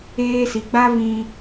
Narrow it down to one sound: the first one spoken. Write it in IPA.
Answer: eː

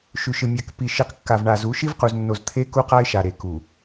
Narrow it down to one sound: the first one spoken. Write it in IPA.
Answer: ʃ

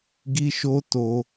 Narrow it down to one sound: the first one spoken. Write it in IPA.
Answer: ɡ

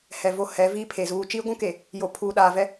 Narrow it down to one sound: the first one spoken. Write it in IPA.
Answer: h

